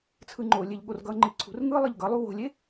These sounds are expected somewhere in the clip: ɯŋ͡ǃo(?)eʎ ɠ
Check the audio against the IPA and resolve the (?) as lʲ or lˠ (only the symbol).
lʲ